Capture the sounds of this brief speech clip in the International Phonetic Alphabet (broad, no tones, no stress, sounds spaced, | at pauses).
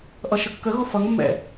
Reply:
ʔ ʌ ʃ ə kː ə ɣ ʊ f ʌ ŋ mː ɛ̰